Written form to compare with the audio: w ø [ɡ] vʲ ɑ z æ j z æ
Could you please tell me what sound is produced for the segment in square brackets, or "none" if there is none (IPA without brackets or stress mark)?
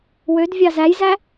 d